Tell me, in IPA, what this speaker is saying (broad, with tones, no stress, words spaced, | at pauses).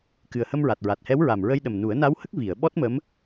kɨ˨˩ə̯hə˧mɹa˨˩t̚ ɹa˨˩t̚hɛ˧˥wɹa˨˩m ɹə˧jɗə˨˩mnu˨˩˦ə̯ na˧˥whə˦˥k̚ vi˨˩˨ə̯ ɓɔ˦˥t̚mə˧˥m